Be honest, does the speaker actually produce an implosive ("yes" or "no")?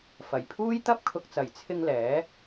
no